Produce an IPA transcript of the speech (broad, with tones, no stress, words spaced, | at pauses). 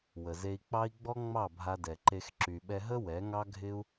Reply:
wə˨ze˧i̯k͡pɑ˦i̯ ɡ͡bɔ˦ŋ͡mɑ˦˨ bʱa˧dɛ˨ǃe˧x ǁy˨ɓɛ˧ɦə˦ wɛ˨˦ŋɑ˦ ɡʱɪ˦u̯